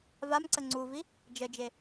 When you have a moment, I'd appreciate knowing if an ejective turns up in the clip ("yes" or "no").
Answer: no